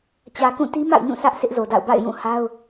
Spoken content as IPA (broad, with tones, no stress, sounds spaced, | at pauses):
t͡ɕ ä˨ k ũ˦˨ t i˦ m a̰˦˨ ʊ̯ ɲ ũ˦˨ s ä˦ ʔ s ɪ˦ ʔ z o˨ d a̰˦˨ ʊ̯ b a̰˦˨ ɪ̯ j ũ˦˨ h a˦ ʊ̯